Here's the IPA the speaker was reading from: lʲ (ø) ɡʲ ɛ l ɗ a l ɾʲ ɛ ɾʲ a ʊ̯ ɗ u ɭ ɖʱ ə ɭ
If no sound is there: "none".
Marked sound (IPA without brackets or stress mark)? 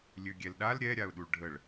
ø